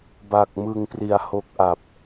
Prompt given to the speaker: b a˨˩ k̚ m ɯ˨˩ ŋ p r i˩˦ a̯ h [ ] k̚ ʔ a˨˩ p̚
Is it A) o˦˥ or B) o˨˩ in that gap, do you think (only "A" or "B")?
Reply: A